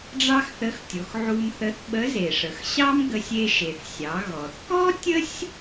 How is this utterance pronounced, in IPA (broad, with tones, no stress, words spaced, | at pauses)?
ɖ͡ʐɑ˥xθə˧˥xtʲo˩˧x ʕu˧mθə˧˥θɓə˧˥ ze˩ʂə˩x ɕɑ˥m ɡə˧sʲ e˧ʃe˩θsʲɑ˩˧ ɣɔ˩θkɔ˥tʲə˥sʲ